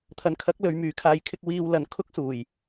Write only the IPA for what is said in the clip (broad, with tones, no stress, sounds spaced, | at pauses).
t̪ʰ ɐ˨ n kʰ ɐ˨˥ k̚ l ɵ˨˧ ɥ m yː˨˧ kʰ aː˧ j kʰ ɪ˥ k̚ w iː˧ w l ɐ˨ n kʰ ʊ˥ k̚ s uː˨˩ j